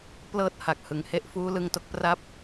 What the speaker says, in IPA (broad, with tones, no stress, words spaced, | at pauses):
plɤː˥˩t̚ha˨˩k̚hɯ˨˩ŋ he˥˩ʔfuː˦˥lɯ˧ŋto˥˩k̚ pra˥˩p̚